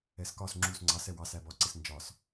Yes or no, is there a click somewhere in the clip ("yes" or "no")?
yes